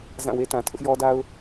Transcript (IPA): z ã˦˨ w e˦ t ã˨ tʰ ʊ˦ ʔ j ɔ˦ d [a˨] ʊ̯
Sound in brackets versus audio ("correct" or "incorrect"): incorrect